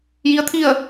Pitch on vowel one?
rising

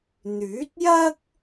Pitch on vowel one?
rising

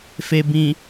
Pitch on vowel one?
low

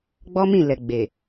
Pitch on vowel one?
high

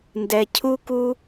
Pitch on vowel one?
low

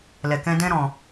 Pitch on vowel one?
low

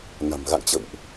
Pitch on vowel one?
low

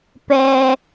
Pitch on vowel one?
high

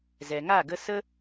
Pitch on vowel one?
low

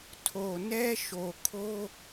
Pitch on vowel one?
low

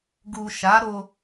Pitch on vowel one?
low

